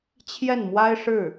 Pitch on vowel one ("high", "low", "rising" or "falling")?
falling